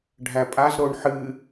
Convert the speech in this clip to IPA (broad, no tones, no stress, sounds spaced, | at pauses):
ɖʱ æ pʼ a z ɾ o ɳ ħ ɨ